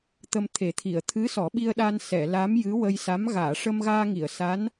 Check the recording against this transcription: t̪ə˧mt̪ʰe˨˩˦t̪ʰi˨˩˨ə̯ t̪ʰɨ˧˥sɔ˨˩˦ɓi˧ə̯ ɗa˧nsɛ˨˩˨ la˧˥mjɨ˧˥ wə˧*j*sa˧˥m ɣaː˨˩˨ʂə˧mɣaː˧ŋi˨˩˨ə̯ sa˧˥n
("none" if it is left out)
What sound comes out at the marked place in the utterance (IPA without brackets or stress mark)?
j